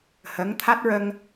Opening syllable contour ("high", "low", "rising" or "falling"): rising